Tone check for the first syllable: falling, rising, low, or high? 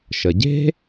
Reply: low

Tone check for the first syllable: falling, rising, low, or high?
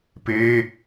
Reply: high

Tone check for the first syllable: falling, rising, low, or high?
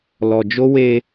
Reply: low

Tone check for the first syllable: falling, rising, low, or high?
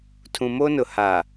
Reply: low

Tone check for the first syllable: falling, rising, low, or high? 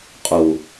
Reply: low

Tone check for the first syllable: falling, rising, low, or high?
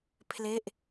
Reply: falling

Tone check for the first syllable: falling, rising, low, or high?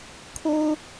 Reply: high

